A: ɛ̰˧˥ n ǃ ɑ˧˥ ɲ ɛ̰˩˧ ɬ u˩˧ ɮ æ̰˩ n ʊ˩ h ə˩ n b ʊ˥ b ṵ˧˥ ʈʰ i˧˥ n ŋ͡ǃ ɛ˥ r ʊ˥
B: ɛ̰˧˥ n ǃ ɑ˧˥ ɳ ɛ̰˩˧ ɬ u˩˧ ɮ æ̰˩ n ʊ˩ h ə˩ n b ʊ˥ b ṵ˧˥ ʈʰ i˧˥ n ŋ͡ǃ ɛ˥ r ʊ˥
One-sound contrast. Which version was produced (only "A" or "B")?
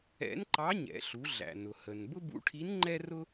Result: A